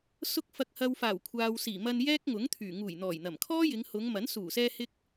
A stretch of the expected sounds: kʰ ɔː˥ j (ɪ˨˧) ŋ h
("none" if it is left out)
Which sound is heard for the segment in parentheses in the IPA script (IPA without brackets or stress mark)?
ɪ˨˧